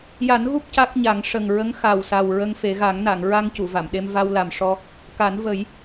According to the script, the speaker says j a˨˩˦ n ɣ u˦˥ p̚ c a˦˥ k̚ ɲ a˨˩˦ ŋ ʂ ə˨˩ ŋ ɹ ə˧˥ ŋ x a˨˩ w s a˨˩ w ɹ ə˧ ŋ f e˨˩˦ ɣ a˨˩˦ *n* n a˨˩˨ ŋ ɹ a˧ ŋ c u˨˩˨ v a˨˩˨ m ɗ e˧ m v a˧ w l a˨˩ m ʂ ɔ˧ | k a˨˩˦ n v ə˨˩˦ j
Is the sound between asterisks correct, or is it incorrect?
incorrect